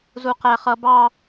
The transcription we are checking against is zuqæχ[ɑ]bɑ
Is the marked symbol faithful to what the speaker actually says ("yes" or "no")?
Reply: no